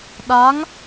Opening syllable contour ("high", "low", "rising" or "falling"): rising